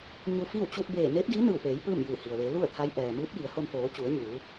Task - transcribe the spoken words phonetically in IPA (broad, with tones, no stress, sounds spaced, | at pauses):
ɲ u˧ f iː˥˨ w t͡ɕ u˧ t̚ b eː˧˩ n eː˧˥ p̚ d iː˧˥ n ɯː˧˩ w p eː˩˧ j p ɯː˥˨ m j ɯː˧˩ h i˩ ə̯ ʋ e˩˧ l u˥˨ ə̯ t̪ʰ a˧˥ j ʔ ɛː˩ m ɯː˧˥ p̚ j i˩˧ ə̯ h o˧ n f oː˩˧ t͡ɕ u˩˧ ə̯ ɲ uː˩˧